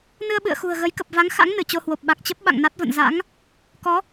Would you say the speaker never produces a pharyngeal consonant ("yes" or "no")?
yes